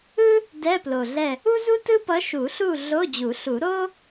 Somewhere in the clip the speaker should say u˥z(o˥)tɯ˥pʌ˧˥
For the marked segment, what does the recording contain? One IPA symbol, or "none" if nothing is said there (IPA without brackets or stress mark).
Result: u˥